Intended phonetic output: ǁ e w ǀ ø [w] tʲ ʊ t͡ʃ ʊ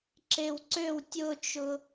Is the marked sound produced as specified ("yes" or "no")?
yes